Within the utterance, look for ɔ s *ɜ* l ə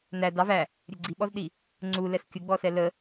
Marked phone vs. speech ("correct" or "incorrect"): incorrect